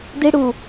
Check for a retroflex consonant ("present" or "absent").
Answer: present